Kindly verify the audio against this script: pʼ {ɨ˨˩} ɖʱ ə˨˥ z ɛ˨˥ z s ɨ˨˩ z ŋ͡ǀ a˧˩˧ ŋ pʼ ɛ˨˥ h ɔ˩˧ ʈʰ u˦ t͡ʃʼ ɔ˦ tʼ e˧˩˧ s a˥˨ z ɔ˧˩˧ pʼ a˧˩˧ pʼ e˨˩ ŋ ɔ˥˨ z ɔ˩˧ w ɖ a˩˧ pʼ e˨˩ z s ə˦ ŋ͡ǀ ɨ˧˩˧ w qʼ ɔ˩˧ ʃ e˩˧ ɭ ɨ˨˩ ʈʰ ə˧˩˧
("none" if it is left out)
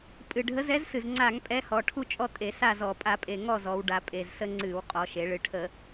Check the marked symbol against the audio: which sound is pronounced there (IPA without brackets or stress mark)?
ɨ˨˩